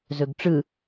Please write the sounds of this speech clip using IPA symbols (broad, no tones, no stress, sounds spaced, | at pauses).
z ɵ ɡ ʈ͡ʂ ɯ